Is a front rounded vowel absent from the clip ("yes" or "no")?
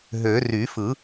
no